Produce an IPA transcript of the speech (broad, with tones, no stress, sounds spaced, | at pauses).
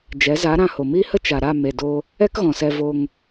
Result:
d͡ʒ ɛ˨˦ z a˨˦ ɾ ã˧ h o˨ m i˦ h ə˦ t͡ʃ a˨ ɾ a˦˨ m e˨ d o˧ | ɛ˦ k ɣ ɔ̃˨ s ɛ˧ v o˧ ŋ